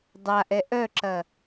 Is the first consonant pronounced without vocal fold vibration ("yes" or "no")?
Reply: no